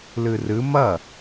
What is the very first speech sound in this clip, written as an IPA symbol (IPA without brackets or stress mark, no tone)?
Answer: l